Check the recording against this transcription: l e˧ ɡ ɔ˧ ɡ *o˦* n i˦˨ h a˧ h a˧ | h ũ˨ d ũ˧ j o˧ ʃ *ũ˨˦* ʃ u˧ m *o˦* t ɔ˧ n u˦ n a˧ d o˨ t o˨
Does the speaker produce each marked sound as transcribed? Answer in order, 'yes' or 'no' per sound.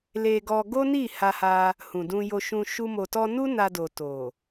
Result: yes, no, no

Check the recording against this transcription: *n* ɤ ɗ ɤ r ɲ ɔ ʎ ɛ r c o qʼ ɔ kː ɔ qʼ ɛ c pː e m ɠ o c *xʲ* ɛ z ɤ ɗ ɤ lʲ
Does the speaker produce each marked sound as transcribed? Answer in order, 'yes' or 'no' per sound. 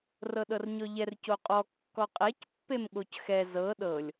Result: no, no

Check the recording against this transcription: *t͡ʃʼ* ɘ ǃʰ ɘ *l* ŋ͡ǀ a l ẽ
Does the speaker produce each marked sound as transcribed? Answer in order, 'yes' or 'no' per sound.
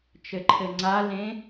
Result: no, no

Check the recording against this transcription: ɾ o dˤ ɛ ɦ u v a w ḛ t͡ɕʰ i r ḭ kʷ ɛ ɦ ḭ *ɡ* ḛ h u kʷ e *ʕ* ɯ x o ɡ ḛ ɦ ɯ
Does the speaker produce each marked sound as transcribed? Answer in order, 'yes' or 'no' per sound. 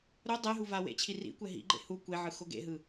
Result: no, yes

